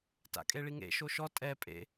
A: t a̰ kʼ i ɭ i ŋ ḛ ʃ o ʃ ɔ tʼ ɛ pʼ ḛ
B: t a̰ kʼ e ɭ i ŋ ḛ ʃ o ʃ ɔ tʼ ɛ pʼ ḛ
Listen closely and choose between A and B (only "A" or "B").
B